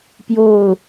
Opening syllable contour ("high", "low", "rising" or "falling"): falling